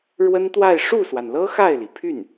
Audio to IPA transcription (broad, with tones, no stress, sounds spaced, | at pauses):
ɻ w ə˥ n t̪ w a˥˧ ɪ̯ ʂ u˥˩ s w a˩ n l ɤ˥ x a˥˩ ɪ̯ l i˩ pʰ y˥˩ n